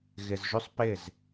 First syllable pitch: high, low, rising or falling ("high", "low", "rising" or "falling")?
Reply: low